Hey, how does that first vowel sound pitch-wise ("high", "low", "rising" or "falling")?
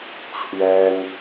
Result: high